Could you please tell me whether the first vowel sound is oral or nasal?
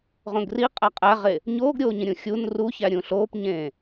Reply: nasal